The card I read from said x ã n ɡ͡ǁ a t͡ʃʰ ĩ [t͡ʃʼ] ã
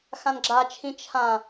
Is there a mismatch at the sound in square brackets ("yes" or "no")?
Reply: yes